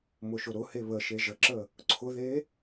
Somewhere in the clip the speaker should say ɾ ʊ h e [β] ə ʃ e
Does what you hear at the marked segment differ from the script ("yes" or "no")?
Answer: no